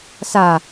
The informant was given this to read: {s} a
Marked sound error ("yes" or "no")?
no